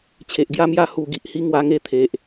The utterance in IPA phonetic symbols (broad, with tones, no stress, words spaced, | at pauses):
t͡ɕʰe˨ʔɡja˥˧ mja˧hu˨˩ɡi˨ʔhi˧ ŋwa˧ŋe˧t̪ʰe˨ʔ